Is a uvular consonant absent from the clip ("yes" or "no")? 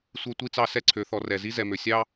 yes